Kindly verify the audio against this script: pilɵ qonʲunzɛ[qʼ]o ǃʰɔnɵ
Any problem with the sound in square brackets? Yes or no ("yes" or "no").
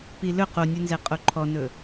no